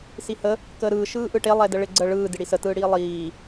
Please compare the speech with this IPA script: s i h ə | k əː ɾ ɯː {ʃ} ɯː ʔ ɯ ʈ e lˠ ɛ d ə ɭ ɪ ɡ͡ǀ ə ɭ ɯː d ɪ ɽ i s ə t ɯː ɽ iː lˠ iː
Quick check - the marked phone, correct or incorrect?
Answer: correct